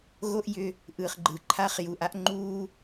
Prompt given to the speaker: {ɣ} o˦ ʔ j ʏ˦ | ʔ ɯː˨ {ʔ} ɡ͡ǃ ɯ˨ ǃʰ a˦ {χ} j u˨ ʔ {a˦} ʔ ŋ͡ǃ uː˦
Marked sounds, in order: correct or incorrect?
correct, incorrect: χ, correct, correct

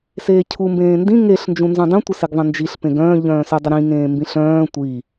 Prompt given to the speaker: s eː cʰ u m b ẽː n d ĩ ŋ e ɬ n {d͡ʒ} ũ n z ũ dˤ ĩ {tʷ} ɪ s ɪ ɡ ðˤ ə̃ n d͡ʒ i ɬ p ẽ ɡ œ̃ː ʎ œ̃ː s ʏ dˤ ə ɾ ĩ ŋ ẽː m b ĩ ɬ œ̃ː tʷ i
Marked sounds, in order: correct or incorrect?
correct, correct

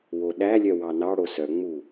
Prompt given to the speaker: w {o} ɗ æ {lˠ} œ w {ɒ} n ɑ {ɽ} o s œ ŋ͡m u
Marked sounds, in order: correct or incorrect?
correct, incorrect: lʲ, incorrect: ɑ, correct

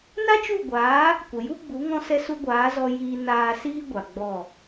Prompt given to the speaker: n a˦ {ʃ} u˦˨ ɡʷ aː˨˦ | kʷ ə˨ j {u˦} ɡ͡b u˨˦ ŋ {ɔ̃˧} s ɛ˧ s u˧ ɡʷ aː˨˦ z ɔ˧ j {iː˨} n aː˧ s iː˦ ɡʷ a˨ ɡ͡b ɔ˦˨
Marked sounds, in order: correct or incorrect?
incorrect: t͡ʃ, correct, correct, incorrect: iː˧

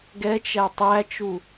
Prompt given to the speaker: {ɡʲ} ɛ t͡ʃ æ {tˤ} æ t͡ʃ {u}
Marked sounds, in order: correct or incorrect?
incorrect: ɡ, correct, correct

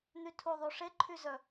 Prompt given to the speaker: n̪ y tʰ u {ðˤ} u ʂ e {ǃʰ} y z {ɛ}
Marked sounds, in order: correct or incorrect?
correct, correct, incorrect: œ

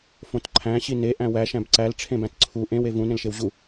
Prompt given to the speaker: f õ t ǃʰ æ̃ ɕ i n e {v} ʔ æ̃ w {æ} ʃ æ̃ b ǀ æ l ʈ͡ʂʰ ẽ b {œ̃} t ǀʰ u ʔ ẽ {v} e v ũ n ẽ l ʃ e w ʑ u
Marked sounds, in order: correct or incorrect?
incorrect: none, correct, incorrect: æ̃, incorrect: w

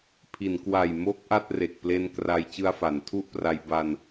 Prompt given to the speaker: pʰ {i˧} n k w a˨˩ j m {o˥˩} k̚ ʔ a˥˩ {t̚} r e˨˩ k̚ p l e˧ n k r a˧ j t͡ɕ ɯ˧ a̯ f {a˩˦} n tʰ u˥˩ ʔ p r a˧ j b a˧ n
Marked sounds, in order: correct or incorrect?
incorrect: i˩˦, incorrect: o˦˥, correct, correct

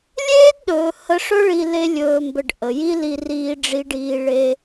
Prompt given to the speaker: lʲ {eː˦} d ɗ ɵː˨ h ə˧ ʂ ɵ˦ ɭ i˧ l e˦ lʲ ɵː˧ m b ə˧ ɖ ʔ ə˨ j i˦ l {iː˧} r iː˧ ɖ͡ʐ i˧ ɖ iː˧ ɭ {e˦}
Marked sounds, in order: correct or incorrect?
correct, incorrect: i˧, incorrect: e˧

